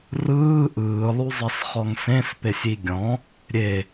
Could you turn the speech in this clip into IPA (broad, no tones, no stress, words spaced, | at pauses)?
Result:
rɯː ʔɯːlˠuzˤɛs χɔŋsẽspesʲi ɡʲɔ̃ | ɾʲe